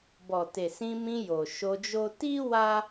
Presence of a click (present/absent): absent